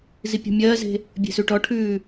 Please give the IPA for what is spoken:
z i pʲ ɔ̤ mʲ ɜː z e̤ | bʲ e̤ s ʉ ʈ ɔ ʈʰ ʉː

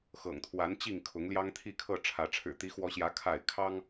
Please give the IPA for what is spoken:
x ɤ̰˨˩ ŋ t̪ʰ w a˨˦ n t͡ɕ i˥˨ ŋ kʰ ʊ˨˦ ŋ l j ɑ˦ ŋ t̪ʰ i˥˨ kʰ ɤ˥˨ ʈ͡ʂʰ ä˨˦ ʈ͡ʂʰ ɻ̩˨˩ t̪ i˨˦ x w ɔ˨˦ ɕ j ä˨˦ kʰ a˥˨ ɪ̯ kʰ ɑ˦ ŋ

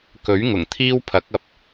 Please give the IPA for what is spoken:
k ɵ˨˥ ɥ ŋ ʊ˨˩ ŋ t̪ʰ iː˥ w pʰ ɐ˨˥ k̚ ɐ˨ p̚

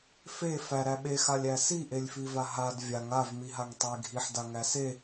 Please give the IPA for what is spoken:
f e f æ ɾ æ ɓ e x a lʲ æ s i ʔ e lʲ f i v a ɦ a d vʲ a ŋ a v m i ɦ a ŋ tˤ e ɡʱ i ħ d a ŋ æ s e

